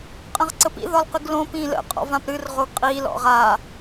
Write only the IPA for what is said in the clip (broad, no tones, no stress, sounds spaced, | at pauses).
qʼ ə̃ ʁ ǀ ə p ḭ ð ɒ l q ɨ ɡ l õ p ĩ l ə̰ qʼ ɔ̰ v ã p ɾ ɨ r ʁ o ɡ qʼ i l ɔ̰ ʁ a